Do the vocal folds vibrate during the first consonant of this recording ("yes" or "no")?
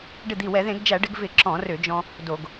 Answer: yes